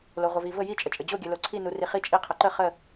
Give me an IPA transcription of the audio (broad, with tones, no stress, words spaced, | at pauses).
lo˩ʁʷɘ˩vi˩ və˧˩ji˧˩t͡ʃʼə˩t͡ʃʼɘ˩ d͡ʑo˧˩ɡʲɘ˩lo˩ ǀʰi˧˩nu˩ri˩ χi˧˩t͡ʃʼi˧˩ qʰə˩ǃə˧˩χə˧˩